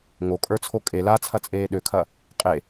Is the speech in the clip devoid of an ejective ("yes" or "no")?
no